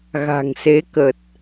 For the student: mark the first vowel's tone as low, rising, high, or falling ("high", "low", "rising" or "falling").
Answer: low